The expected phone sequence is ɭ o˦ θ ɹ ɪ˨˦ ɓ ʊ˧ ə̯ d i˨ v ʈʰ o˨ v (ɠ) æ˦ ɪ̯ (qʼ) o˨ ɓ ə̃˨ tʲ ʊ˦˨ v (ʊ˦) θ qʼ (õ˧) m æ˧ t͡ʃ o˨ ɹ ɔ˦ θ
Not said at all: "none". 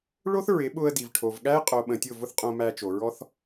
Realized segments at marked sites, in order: ɠ, qʼ, ʊ˦, õ˧

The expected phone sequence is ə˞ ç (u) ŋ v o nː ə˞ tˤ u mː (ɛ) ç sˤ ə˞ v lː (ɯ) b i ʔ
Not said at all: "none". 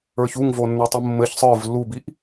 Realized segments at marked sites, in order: u, ɘ, u

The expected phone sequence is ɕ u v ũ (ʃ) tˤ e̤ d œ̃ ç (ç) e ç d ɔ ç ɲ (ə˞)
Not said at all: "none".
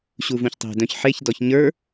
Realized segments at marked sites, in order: ç, ħ, ə˞

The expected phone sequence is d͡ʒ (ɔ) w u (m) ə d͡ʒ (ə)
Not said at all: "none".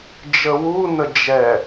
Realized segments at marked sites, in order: ə, n, ɛ

